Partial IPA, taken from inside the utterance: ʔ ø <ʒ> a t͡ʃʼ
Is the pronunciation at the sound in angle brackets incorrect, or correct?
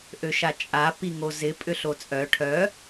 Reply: incorrect